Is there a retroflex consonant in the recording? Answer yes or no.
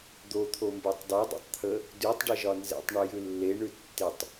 yes